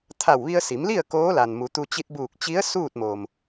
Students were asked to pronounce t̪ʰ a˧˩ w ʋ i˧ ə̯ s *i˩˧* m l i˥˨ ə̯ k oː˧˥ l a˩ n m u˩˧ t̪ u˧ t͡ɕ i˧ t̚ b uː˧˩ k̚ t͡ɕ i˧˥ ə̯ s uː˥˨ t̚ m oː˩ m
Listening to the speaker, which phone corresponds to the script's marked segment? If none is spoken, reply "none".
i˩˧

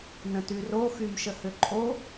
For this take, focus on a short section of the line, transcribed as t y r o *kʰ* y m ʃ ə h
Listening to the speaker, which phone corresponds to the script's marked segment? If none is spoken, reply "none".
x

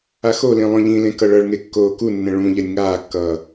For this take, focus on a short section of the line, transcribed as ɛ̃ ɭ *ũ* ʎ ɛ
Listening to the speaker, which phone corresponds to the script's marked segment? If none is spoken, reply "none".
ũ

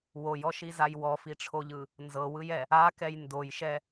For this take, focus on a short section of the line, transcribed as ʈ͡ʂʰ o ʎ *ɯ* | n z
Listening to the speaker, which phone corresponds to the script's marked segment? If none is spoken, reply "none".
ɯ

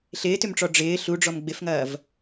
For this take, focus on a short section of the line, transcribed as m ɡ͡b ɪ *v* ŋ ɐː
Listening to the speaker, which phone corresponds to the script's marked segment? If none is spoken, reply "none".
f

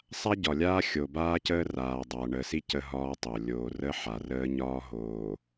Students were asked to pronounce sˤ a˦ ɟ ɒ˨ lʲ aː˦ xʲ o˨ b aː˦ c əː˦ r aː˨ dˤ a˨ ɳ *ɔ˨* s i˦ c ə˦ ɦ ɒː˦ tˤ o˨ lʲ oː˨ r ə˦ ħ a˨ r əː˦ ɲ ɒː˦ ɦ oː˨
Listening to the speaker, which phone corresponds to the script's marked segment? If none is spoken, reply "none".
ə˨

